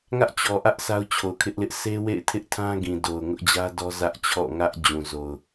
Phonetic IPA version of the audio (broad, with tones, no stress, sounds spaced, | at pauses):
ŋ ä˦ ʔ t͡ɕ ɔ˨ ʔ ä˦ ʔ s a˦ ʊ̯ t͡ɕʰ o˨ ʊ̯ kʰ ɪ˦ ʔ l ɪ˦ ʔ s e˦ w ḛ˦˨ ɪ̯ tʰ ɪ˦ ʔ tʰ ã˦ ɡ ĩ˨ d o˨ ʊ̯ ŋ ʊ˦ ʔ d͡ʑ ä˦ d ɔ˦ z ä˦ ʔ t͡ɕʰ ɔ̰˦˨ ŋ ä˦ ʔ d͡ʑ ũ˨ z o˨ ʊ̯